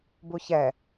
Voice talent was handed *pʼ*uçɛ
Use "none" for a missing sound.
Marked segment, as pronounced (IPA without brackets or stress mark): b